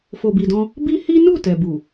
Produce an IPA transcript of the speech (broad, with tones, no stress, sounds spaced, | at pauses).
f o˨ b i˨ d ɔ̃˧ | b i˦ h i˦ n u˦˨ t ɛ˨ b u˨